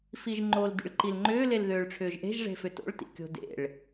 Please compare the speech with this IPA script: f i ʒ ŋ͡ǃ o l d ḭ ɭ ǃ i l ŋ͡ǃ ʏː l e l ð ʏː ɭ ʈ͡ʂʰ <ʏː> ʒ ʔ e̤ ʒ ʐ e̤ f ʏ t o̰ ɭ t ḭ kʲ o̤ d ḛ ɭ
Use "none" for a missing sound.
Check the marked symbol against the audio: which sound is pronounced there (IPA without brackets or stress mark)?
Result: ʏː